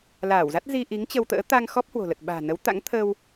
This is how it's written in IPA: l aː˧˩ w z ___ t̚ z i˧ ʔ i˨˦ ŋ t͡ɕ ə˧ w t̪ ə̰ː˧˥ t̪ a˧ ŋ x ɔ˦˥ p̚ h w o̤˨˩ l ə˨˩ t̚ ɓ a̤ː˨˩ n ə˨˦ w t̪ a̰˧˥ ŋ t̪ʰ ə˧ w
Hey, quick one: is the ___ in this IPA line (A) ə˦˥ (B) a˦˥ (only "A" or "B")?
B